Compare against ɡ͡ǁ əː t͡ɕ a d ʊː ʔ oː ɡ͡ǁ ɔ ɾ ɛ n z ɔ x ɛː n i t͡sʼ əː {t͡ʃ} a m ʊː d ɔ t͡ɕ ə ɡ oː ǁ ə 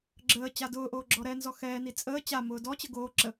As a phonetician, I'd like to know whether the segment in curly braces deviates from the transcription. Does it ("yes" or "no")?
yes